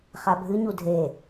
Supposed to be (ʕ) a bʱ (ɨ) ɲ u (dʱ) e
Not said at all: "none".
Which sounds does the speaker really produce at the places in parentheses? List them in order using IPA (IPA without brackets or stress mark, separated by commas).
χ, ɨ, dʱ